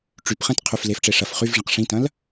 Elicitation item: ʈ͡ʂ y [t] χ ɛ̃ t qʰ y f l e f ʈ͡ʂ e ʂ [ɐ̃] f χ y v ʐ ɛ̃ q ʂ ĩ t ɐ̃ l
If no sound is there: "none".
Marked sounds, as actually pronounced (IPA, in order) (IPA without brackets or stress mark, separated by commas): p, ɐ